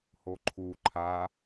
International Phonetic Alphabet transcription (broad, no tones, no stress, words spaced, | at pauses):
hoǃʰu ǃʰa